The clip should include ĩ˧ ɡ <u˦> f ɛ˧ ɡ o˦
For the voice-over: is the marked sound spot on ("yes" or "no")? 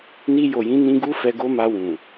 yes